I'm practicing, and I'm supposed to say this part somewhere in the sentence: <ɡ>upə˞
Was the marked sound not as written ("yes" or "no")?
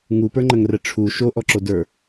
yes